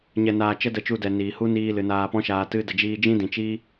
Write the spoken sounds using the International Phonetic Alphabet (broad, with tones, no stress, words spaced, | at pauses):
ɲɛ˧naː˧ t͡ʃə˦də˧t͡ʃu˧ dɛ˨niː˨hu˦ niː˧ lɨ˨naː˧pɔ̃˦ʃaː˧ tɨ˧ də˨d͡ʒiː˧ d͡ʒĩ˦dĩ˨t͡ʃiː˦